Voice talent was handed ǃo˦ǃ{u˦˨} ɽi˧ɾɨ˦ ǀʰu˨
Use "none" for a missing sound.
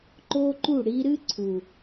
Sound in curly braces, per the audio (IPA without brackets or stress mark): u˦˨